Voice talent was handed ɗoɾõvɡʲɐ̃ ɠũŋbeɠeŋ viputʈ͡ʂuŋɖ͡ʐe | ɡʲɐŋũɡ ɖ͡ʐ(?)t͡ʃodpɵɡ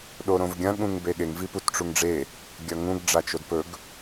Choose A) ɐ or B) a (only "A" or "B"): B